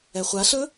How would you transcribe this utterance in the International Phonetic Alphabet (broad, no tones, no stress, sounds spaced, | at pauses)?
ɛ χʷ a ɬ ɵ